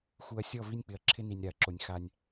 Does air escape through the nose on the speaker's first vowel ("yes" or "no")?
no